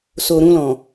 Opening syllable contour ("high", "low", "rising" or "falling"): low